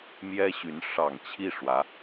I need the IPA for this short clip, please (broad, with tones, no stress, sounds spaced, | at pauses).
m j ɛ˥ ɕ y˧˥ n ʂ ɑ˨˩ ŋ t͡ɕʰ i˥˩ ʂ w ä˧˥